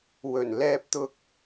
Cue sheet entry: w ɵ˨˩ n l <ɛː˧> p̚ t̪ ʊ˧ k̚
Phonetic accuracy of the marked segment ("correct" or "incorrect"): correct